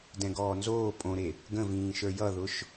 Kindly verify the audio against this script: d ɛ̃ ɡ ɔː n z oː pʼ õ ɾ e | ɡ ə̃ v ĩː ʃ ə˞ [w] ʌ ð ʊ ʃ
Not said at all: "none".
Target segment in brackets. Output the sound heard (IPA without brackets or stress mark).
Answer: j